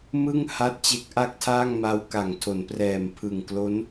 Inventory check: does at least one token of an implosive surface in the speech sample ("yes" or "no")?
no